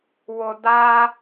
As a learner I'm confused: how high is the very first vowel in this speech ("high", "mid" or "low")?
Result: high